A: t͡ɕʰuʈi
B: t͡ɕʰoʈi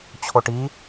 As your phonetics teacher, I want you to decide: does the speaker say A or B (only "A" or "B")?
B